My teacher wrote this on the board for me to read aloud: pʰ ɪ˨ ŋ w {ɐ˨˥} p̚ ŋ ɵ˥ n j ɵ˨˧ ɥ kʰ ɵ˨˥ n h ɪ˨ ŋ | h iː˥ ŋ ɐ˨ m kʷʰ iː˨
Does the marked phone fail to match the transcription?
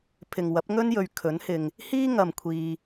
no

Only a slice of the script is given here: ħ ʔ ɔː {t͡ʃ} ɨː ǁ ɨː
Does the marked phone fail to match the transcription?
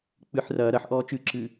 no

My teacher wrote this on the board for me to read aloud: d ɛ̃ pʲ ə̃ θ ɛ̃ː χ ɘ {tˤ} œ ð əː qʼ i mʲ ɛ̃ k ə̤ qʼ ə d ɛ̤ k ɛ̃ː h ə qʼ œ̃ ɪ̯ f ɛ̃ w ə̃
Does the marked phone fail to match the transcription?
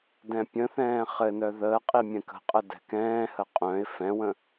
yes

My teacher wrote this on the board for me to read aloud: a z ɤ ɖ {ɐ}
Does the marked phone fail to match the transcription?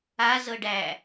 yes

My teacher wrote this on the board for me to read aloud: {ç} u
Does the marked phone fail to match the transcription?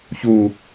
no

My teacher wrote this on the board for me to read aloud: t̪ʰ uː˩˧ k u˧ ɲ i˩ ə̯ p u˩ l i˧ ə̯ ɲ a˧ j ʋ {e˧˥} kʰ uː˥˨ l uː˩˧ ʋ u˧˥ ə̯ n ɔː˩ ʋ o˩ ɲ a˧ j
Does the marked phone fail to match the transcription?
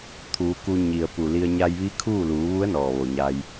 yes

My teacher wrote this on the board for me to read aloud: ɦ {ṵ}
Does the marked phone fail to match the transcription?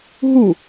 yes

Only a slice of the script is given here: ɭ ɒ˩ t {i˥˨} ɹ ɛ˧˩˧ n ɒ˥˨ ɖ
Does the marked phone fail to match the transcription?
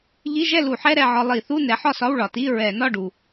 yes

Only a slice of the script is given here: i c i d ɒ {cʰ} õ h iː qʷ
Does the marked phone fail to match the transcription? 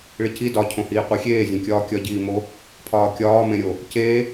no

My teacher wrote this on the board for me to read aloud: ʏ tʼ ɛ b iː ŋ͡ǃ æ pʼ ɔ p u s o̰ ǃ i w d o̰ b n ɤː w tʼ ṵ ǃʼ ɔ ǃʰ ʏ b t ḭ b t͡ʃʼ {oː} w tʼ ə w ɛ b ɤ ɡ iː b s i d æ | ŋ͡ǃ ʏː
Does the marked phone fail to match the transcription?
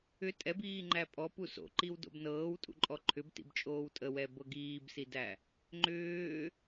no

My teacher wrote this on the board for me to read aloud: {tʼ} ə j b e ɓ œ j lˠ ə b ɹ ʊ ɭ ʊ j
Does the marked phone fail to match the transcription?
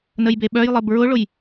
yes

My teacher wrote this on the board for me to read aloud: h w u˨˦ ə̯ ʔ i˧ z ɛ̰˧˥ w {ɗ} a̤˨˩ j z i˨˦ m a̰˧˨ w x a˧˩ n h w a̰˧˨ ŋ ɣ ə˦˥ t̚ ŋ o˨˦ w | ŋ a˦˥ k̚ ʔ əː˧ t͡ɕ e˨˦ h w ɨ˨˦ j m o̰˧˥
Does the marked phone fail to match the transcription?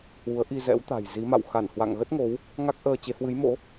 yes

